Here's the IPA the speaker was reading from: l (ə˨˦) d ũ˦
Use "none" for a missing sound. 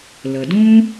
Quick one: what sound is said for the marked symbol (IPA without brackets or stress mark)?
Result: ə˨